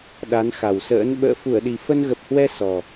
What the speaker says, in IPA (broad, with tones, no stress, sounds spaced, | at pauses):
ɗ a˨˦ n x a˨˩ w s ə̰ː˧˥ n ɓ ə̰ː˧˨ f u˧˩ ə̯ ɗ i˨˩ f ə˧ n ɣ ə˨˩ p̚ h w ɛ˧ s ɔ˨˩